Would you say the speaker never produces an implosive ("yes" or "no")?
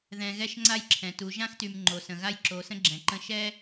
yes